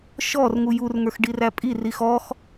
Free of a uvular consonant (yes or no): yes